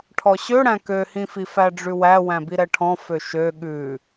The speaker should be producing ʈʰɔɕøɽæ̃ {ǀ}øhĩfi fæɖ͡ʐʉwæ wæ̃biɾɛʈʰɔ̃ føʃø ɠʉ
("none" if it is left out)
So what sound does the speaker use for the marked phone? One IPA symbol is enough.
k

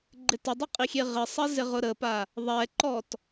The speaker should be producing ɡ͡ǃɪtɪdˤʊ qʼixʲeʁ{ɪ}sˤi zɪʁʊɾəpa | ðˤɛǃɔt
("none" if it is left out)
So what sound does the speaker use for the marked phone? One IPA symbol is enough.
ɪ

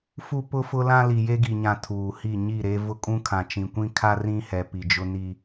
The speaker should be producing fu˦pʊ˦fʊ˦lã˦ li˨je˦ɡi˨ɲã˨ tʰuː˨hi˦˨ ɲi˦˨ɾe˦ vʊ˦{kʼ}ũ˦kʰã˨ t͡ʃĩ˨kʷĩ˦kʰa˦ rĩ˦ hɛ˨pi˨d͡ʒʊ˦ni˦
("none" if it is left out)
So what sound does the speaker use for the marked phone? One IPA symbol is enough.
kʼ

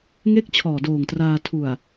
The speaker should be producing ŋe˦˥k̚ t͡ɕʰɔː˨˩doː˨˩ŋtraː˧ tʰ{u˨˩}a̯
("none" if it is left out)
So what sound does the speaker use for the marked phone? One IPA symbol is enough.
u˨˩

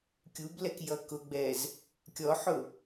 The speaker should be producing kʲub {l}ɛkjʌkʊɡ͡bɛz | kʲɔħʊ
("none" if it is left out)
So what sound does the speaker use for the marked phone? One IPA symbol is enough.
l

